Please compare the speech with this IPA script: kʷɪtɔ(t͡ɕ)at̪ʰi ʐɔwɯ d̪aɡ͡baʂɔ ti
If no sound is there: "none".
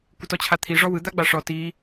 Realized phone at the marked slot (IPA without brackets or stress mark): t͡ɕʰ